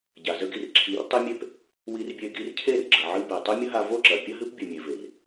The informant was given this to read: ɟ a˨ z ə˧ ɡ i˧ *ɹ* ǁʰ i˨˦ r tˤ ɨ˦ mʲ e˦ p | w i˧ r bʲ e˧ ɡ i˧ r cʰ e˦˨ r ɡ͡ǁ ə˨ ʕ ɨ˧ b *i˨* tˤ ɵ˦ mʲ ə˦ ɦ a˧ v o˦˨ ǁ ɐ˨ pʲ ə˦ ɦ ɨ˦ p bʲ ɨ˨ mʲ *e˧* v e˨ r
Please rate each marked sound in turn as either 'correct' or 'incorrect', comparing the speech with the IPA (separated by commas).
incorrect, incorrect, incorrect